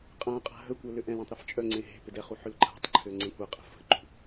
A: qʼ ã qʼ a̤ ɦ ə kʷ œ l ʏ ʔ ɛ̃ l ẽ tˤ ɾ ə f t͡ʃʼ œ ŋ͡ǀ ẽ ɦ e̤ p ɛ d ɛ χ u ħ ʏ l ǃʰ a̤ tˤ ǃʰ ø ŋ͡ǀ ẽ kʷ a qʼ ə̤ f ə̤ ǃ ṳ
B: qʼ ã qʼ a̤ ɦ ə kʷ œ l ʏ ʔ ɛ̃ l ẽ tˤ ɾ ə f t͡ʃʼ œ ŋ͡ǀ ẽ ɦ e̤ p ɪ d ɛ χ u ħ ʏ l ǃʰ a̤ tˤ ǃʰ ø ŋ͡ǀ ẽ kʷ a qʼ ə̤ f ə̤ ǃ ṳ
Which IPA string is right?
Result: B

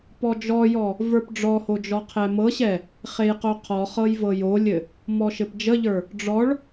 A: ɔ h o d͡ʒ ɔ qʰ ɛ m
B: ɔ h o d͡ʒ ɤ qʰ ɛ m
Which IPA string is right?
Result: A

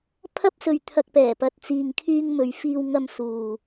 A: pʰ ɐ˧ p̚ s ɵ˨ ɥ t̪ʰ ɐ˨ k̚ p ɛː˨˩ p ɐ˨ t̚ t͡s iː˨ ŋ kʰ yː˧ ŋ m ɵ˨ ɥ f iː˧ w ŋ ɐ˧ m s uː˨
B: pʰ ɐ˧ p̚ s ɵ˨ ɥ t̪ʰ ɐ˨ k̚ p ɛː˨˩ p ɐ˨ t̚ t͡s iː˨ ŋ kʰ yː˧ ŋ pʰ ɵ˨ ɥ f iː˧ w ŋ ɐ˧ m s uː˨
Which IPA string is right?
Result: A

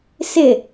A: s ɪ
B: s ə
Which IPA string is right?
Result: A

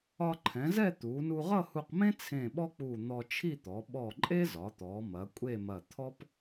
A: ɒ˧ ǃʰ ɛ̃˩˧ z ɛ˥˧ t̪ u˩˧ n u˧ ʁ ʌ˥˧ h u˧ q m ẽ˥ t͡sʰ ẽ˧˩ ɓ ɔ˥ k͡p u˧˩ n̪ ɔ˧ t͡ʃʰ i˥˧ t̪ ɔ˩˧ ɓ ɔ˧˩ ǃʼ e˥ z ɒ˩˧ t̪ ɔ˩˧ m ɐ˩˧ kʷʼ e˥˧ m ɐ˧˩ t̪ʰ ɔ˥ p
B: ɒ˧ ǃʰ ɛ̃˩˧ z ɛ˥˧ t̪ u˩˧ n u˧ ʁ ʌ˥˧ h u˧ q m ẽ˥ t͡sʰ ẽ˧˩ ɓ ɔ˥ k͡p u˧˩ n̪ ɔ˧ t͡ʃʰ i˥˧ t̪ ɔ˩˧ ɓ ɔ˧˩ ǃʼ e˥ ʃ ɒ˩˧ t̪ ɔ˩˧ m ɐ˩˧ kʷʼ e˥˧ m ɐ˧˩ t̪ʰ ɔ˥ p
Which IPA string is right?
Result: A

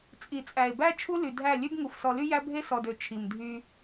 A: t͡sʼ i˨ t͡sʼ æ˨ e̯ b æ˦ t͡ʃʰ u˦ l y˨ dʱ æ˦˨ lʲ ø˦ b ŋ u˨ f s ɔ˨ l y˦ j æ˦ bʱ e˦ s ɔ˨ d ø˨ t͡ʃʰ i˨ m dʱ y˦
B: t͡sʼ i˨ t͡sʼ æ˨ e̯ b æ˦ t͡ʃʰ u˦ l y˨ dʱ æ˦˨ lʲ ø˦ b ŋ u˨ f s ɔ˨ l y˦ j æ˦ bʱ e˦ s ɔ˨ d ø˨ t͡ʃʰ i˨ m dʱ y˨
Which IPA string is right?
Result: A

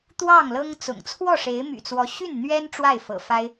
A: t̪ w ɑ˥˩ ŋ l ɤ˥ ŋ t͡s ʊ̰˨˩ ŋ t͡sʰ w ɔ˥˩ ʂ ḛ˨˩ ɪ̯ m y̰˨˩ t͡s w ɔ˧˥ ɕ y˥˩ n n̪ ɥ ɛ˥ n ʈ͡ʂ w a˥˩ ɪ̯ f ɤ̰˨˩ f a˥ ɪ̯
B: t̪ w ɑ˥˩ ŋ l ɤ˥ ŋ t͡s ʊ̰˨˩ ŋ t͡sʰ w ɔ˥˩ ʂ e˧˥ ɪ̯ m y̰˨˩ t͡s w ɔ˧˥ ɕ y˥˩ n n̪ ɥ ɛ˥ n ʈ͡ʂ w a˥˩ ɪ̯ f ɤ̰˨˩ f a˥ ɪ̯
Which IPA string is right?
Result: B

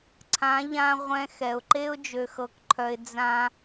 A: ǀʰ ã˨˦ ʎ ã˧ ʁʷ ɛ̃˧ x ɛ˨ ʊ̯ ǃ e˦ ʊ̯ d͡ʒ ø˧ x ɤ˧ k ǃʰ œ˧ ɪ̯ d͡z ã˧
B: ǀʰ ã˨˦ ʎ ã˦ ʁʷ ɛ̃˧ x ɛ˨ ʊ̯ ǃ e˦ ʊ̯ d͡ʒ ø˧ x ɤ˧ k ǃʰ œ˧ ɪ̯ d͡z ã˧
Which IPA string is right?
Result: A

